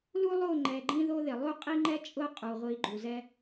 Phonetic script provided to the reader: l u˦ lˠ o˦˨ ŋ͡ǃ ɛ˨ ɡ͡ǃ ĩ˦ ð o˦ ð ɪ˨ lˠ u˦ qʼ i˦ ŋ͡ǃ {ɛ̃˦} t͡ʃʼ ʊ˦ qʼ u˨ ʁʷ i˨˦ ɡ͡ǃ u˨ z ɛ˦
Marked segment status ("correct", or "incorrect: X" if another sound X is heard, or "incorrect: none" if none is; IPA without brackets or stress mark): incorrect: ɛ˦